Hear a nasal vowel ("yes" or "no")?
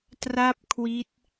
no